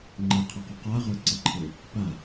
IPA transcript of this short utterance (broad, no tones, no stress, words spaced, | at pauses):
ŋ͡ǃeqʰeqɵ qaʁə˞ǀəǃʰe | pa